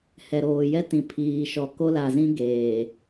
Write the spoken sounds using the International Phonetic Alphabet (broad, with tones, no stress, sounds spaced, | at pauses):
h ɛ˨ ɾ oː˨ j ɛ˦ t ĩ˨ pʰ iː˨ ʃ ɔ˨ k o˦ l a˨ z ĩ˦ ɡ eː˨